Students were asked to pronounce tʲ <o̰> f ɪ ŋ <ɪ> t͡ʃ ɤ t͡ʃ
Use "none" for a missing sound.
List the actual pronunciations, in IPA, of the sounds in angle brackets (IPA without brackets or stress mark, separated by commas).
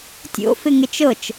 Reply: o̰, ɪ